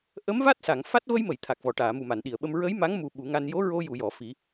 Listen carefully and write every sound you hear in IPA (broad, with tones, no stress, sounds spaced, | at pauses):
ʔ ə˧˥ m v a˦˥ t̚ s a˨˩˨ ŋ f a˦˥ t̚ v ə˧ j m ə˨˩˨ j t̪ʰ a˨˩ k̚ v ɔ˨˩˨ ʈ aː˨˩˨ m u˨˩ m a˨˩˨ n ɗ i˨˩˨ ə̯ ɓ ə˧ m ɹ ə˧˥ j m a˧˥ ŋ m u˧ ɓ u˨˩˦ ŋ a˧ n j o˧˥ ɹ o˧ j u˨˩˨ j ɔ˨˩˨ f i˨˩˦